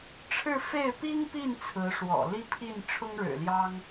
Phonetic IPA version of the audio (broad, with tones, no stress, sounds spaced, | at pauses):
ʈ͡ʂʰ ɻ̩˥˧ f e˥˩ ɪ̯ p i˥ ŋ p i˥˩ n t͡sʰ ɹ̩˧˥ ʂ w ɔ̰˨˩ l i˥˧ pʰ i˥˩ n ʈ͡ʂʰ ʊ˥ ŋ ɻ ɻ̩˨˩ l j ɑ˥ ŋ